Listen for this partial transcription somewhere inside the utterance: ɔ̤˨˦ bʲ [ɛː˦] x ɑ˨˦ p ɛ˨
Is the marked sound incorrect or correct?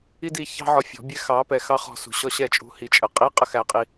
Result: incorrect